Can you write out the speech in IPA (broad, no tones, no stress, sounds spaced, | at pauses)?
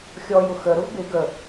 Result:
xʲ ɔ j ʊ x ə ɾ ʊ v b ɪ ɡ ə